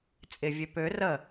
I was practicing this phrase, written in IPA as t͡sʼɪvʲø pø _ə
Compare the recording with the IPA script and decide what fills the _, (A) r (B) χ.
A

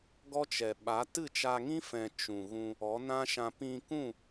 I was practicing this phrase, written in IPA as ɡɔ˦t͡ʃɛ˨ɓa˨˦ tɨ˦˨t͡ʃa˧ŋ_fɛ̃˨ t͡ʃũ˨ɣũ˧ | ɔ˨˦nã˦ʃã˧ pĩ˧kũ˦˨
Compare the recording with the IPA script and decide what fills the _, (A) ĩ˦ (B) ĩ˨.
A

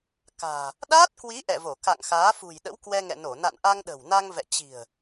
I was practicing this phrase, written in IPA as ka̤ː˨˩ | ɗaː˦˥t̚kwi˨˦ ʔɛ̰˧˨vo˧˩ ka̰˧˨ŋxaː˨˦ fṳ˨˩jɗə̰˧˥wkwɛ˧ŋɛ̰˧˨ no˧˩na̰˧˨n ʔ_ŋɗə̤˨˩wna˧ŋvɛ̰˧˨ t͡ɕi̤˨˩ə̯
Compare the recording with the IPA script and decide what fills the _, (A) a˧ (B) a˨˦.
A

